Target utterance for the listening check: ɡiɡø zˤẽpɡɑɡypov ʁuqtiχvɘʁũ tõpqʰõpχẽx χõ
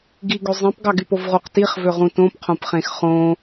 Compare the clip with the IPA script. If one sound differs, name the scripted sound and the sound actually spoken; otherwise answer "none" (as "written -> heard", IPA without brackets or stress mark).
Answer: ɘ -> ø